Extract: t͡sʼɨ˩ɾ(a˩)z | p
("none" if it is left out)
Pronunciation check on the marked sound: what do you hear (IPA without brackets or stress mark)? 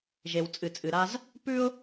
a˥